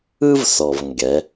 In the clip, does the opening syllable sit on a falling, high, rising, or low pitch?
high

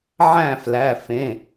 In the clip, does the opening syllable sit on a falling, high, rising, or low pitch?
falling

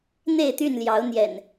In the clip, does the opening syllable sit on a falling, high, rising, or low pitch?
falling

